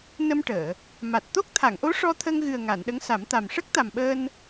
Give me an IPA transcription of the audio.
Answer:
n ə˧ m ʈ əː˨˩˨ | m a˨˩ t̚ t̪ o˦˥ k̚ t̪ʰ a˨˩˨ ŋ ʔ o˧˥ ʂ ɔ˧ t̪ʰ ə˧ ŋ ɣ ɨ˨˩ ə̯ ŋ a˨˩˨ n ɗ ə˧˥ ŋ s a˨˩˦ m t̪ a˨˩ m ʂ ə˦˥ k̚ t̪ a˨˩ m ɓ əː˧ n

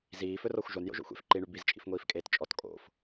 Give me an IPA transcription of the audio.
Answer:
z iː f ɵ r ɔ xʷ ʒ o n j o̰ ʒ o̰ xʷ ḛ f ǃ i ɳ y b i z t͡ʃʼ ḭ f ŋʷ iː f kʼ eː t t͡ʃʼ ɔ t kʼ o̰ f

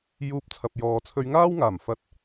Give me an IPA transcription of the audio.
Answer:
j uː˧ p̚ t͡sʰ ɐ˨ p̚ j ɔː˨ t͡sʰ ɵ˧ ɥ ŋ aː˥ w ŋ aː˨˩ m f ɐ˧ t̚

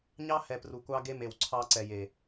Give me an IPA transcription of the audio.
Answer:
ɲ ɑ˦ h ɛ˨ p r u˨ kʷ ɑ˦ ɡ e˦ m e˨ w ǀʰ ɑ˦ ǀ ɛ˨ j e˨

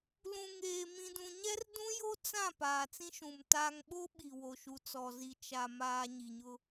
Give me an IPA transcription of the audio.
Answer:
l ũ˨ ŋ eː˨ m ĩ˨ d ũ˨ ɲ ɛ˦ r d ũ˦ j o˦ t͡s ã˦˨ p aː˨ t͡s ĩ˦ ʃ ũ˨ m t aː˨ ŋ ɓ o˦ ɓ i˨ w o˨ ʃ u˨ t͡s ɔ˨ z i˨ t͡ʃ a˨ m aː˨ ɲ i˨ ɲ ʊ˦

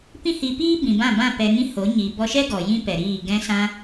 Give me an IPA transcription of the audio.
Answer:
p ĩ˦ h i˧ p iː˦ b ĩ˨ b ã˦˨ b ã˦˨ p ɛ˧ ŋ ĩ˦ h o˨˦ ɲ i˨ b ɔ˧ ʃ ɛ˦ ɡ ɔ˨ j ĩ˦ p ɛ˨ ɾ iː˦˨ ɡ ɛ̃˧ s ã˧

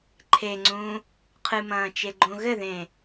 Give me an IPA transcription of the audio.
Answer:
ǃʰ e ŋ͡ǀ ũː | qʰ ɨ m ɐ̃ː t͡ʃ e ɡ͡ǃ õ ɣ ɘ ð ẽː

